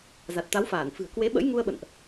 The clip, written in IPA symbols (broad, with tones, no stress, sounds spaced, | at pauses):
z a˨˩ t̚ t̪ a˨˦ w f aː˧˩ n f ɨ̤˨˩ ə̯ k w e˨˦ ɓ ə̰˧˥ j ŋ u˧ ə̯ ɓ ə̰˧˨ n ʔ